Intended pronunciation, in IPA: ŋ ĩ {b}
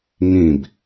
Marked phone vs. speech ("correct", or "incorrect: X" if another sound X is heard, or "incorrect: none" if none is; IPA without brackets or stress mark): correct